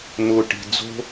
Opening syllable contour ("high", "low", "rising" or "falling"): low